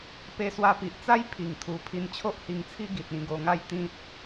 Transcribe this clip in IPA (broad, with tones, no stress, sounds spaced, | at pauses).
p e˧ s w a˧ p i˨ ʔ t͡s a˦ j pʰ i˨˩ ŋ t̪ʰ u˨˩ pʰ i˧ n t͡ɕʰ o˦ ʔ h i˧ ŋ t͡sʰ i˦ ɡ i˨ t̚ ĩ˧ ɡ o˧ ŋ a˥˧ j t̪ ĩ˦ t̚